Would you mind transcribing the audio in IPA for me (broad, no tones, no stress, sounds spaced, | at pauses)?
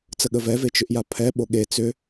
t͡s ə ɠ ə v ɛ v e t͡ʃ ʏ ʔ j a pʰ ɛ ɓ o ɠ e t͡s ʏ